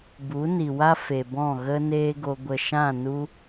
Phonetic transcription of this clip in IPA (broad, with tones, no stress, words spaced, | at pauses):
bu˨˦ni˨wa˦ fe˨bɔ̃˦˨ɣə˦ neː˦ɡo˧ ɡʷə˨ʃã˦˨ nu˧